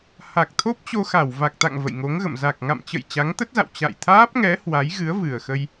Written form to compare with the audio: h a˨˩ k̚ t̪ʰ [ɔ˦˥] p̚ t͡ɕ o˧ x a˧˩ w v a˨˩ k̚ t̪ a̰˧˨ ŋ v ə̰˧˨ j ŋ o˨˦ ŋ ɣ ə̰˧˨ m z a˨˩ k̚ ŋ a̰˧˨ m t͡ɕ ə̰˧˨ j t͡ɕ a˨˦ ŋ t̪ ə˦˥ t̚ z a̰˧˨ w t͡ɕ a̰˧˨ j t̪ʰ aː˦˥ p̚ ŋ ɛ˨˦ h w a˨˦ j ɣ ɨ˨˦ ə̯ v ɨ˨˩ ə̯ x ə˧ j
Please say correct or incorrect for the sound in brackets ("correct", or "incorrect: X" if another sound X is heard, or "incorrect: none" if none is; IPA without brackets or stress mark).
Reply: incorrect: o˦˥